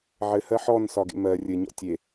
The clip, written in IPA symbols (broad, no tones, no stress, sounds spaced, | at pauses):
ʕ ɘ h ɜ ħ ɔ n s ɒ ɡ ḛ m ɜ rʲ ɘ ɲ ɔ̰ tʲ e